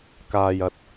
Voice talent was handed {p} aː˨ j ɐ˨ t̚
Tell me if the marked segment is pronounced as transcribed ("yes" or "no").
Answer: no